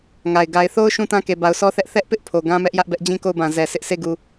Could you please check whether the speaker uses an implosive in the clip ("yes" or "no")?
no